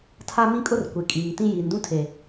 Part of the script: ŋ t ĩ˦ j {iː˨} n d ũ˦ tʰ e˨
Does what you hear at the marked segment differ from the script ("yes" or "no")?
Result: no